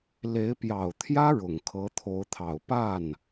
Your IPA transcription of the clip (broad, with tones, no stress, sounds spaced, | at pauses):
l e˧˥ ɪ̯ p j ɑ˨˩ ʊ̯ t̪ʰ j ä˥ ɻ ʊ˨˩ ŋ kʰ ɤ˧˥ t̪ʰ o˧˥ ʊ̯ t̪ʰ ɑ˨˩ ʊ̯ p a˥˩ n